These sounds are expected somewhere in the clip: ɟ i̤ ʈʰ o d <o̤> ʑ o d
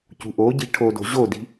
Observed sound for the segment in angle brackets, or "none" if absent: o̤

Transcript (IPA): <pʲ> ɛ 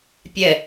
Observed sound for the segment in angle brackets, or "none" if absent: pʲ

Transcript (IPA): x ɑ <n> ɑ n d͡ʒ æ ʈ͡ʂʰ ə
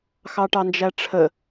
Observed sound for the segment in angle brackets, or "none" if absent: ʈ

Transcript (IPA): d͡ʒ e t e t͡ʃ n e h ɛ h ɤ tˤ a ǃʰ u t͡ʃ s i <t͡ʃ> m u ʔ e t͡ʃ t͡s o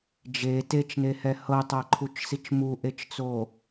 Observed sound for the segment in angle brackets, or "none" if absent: t͡ʃ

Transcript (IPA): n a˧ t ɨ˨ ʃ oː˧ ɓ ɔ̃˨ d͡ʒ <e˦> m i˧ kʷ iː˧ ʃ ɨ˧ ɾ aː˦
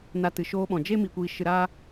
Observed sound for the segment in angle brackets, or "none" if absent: e˦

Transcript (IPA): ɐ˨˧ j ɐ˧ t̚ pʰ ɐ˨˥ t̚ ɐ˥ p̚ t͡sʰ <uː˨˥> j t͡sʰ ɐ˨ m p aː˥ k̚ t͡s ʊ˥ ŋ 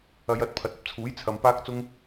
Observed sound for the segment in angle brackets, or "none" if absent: uː˨˥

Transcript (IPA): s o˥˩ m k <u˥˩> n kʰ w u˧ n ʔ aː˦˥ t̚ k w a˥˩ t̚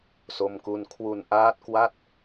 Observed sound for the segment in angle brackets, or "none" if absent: u˥˩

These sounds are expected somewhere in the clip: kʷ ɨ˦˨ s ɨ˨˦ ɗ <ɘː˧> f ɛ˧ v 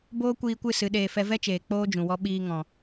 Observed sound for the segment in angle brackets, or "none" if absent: eː˧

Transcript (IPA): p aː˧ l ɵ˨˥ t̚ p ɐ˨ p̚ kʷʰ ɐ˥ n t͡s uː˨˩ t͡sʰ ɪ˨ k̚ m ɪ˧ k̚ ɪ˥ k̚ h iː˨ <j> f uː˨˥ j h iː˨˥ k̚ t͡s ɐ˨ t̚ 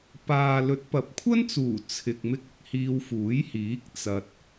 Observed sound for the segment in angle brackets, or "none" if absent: w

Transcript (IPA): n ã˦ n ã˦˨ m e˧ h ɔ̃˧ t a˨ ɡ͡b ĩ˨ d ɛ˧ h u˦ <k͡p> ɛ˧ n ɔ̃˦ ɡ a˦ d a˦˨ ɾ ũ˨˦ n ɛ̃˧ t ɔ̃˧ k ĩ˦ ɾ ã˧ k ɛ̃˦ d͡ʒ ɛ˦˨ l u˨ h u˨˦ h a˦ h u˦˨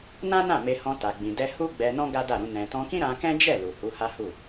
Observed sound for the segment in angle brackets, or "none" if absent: ɡ͡b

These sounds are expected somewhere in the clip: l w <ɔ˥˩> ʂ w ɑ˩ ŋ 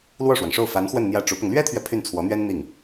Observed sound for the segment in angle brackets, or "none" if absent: ɔ˥˩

